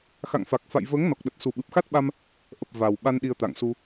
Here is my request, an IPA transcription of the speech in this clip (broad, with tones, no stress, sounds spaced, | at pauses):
x a̰˧˨ ŋ f a˨˩ k̚ f a̰˧˨ j v əː˨˦ ŋ n ɔ˨˩ k̚ ɗ ə˨˩ t̚ s u˨˩ ɓ ɨ˨˩ p̚ x a˦˥ t̚ ɓ a˧ m | ʔ ə˨˩ p̚ v a˨˩ w ɓ a˧ n ɗ i˧ ə̯ t̪ a̰˧˨ ŋ s u˧